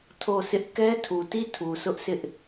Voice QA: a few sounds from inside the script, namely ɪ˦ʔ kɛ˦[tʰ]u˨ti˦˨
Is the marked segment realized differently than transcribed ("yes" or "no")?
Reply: no